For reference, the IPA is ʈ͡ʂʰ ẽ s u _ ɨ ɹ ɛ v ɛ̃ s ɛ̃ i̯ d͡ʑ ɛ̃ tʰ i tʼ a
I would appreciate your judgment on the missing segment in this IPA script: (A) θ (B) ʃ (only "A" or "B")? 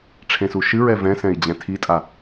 B